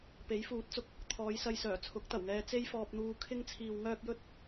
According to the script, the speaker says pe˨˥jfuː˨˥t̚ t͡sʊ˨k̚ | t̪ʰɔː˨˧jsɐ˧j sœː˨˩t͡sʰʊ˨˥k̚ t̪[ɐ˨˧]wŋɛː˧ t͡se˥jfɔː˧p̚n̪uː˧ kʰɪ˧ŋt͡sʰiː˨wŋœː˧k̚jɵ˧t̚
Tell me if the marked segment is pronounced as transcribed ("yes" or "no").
no